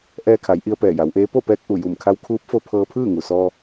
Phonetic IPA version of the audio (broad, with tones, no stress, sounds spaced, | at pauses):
ʔ ɛː˧ kʰ a˩˧ j ʔ i˧ ə̯ p ɛː˧˩ j a˩˧ w ʔ eː˧˥ p o˥˨ p ɛː˧ k̚ ʔ u˧˩ j u˧˩ m kʰ a˧ w kʰ uː˧˥ p̚ f o˧ pʰ ɤː˧ pʰ ɯː˥˨ ŋ u˩ s ɔː˧